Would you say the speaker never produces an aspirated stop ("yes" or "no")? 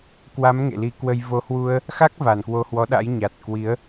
yes